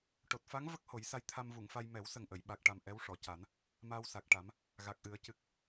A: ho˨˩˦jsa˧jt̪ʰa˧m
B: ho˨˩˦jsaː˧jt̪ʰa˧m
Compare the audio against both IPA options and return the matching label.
A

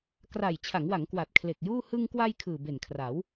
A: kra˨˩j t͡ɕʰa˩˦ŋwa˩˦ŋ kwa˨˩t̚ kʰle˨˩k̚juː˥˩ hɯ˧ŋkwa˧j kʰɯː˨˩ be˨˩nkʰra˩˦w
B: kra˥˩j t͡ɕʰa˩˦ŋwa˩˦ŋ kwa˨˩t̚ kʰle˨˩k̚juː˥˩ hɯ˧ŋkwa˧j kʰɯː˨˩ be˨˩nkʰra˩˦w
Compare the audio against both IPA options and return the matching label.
A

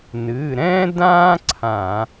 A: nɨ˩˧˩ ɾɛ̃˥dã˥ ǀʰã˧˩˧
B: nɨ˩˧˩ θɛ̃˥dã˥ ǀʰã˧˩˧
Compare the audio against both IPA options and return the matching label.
A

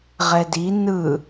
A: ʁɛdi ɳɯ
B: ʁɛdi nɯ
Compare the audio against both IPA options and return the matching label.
B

